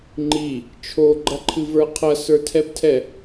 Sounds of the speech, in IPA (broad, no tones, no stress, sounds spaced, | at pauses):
ŋ͡ǃ i | t͡ʃʰ o ɡ͡ǃ ɐ ǃʰ ɨ v ə˞ qʰ ɐ s ə˞ tʰ ɛ b tʰ ɛ